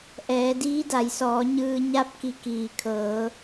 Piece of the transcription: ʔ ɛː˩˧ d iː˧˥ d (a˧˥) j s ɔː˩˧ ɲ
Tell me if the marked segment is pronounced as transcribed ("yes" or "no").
no